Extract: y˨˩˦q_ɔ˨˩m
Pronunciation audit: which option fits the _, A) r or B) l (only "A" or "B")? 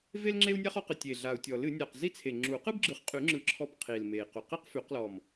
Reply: B